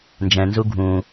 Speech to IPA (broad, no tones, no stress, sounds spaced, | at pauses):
n d͡ʒ ɛ̃ n z u ɡʱ ũ